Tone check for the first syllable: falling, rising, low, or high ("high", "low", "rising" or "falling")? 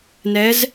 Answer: rising